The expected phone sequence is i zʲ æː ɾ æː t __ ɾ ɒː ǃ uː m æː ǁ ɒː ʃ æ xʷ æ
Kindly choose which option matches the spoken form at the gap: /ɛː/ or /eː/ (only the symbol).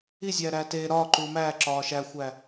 eː